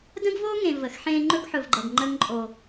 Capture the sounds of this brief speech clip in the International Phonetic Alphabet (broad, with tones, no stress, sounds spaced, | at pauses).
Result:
d ə̃˦ ɡ v o˦ ŋ ẽ˨ v ə˨ x ħ ẽ˦ ŋ͡ǃ ɵ˦ ɡ ħ ɵ˨ v ɡ͡ǃ ʌ˨ ɡ ŋ͡ǃ ə˦ ŋ ǃʼ o˦